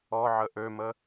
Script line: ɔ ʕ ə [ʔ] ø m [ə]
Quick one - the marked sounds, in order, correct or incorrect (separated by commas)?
correct, correct